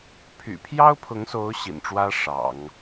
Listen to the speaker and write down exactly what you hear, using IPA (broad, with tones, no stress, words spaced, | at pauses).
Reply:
pʰy̰˨˩pʰjɑ˥ʊ̯pʰʊ˧˥ŋso˧˥ʊ̯ ɕḭ˨˩nʈ͡ʂwä˥ ʂɑ̰˨˩˦ŋ